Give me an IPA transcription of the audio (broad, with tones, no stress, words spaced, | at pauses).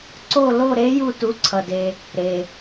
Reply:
ǀo˦˨lo˦˨ɾe˧˥ ju˦˨tu˩˥ǀʰʌ˩de˩ | ɾe˩